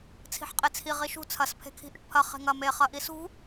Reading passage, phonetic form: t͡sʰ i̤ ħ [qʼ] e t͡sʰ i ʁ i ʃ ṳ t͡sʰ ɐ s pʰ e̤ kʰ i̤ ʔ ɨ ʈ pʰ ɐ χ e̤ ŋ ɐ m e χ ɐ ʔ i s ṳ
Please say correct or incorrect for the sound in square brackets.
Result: correct